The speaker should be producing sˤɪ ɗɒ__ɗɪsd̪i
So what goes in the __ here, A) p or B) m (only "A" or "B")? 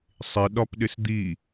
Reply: A